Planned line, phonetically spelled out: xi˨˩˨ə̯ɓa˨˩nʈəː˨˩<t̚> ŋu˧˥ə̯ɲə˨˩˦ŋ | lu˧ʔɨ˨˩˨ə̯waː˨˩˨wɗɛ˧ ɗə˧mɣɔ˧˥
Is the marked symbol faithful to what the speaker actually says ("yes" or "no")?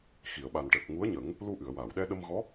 no